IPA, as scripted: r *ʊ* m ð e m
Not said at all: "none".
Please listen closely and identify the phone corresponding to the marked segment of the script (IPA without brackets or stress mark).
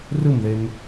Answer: ɯ